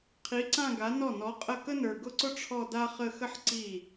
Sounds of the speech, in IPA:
qʰ i˨˥ ǀ ã˥˧ ɡ a˨˥ n ɔ˥˩ n ɔ˨˥ qʼ ə˥˩ k ə˥ n ə˞˨˩ ɡ ʊ˥˧ ǀ ʊ˥ ʈ͡ʂʰ ɔ˥˧ d a˥ χ ə˥˧ x ə˥ ħ ǀ i˥˩

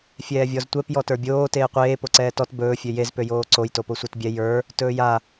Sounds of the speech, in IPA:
fʲ ɛː vʲ ɔ z tʷ ɛ p j ɔ t ə˞ bʲ oː t eː qʷ eː p o ǀ ɛː t ɔ t b ɵː fʲ ø j e z p ø j oː ǀ o j t o p o sʷ ə˞ t bʲ ɛ j ə˞ | t ɵː j a

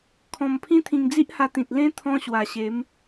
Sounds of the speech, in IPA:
kʰ ɔ̃˧ m pʰ ĩ˦ t̪ʰ ĩ˧ ŋ d͡z i˦ ʔ h a˧ t̪ ĩ˨ t̚ l ẽ˦ t̪ʰ ɔ̃˦ ɕ w a˨˩ ɕ e˨˦ m

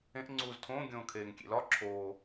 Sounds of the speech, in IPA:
ẽ ʔ ŋ͡ǀ uː z tʰ õː ɡʲ õː kʰ eː ŋ kʲ ḛ l ɒ ǁʰ oː

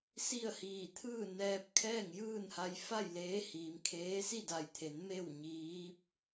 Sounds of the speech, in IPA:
s i˥˨ ə̯ h iː˧˩ t̪ʰ ɯː˥˨ n ɛː˧ p̚ kʰ ɛː˥˨ ŋ j ɯː˥˨ n h a˧ j f a˥˨ j l eː˧˥ h iː˩˧ m kʰ eː˧˥ s i˥˨ d a˧˩ j t̪ʰ e˩˧ n m e˥˨ w ɲ iː˧˥ p̚

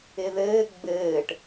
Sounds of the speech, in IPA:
ɪ ð ɘː ɡ͡b ɘː ʈ

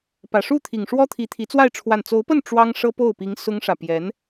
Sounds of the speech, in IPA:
p ä˨˩ ʂ u˥˩ t̪ʰ i˨˩ ŋ ʂ w ɔ˥ t̪ʰ i˧˥ t̪ʰ i˧˥ t͡s w a˥˧ ɪ̯ ʈ͡ʂʰ w a˥˩ n t͡s o˧˥ ʊ̯ p ə˥˩ n ʈ͡ʂ w ɑ˥ ŋ ʂ ɤ˥ p o˥˩ ʊ̯ p i˧˥ ŋ s ʊ˥ ŋ ʂ ä˨ p j ɛ˧˥ n

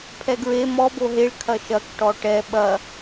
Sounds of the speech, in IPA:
pʰ ɛ ɡ ɹ e m ɔ b o ɦ e ɭ kʰ ɐ ʃ ɐ k ʈ ɔ ʈ ɛ ɓ ɐ

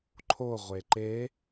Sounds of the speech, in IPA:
ǃʰ o ʁʷ e ǃ e

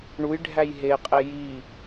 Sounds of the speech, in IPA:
ɳ u j ɖʱ æ j ɦ e qʼ e j i

